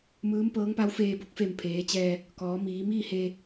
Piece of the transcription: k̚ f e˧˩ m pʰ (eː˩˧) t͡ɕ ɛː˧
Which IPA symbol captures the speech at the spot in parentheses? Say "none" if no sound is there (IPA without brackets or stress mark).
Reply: eː˩˧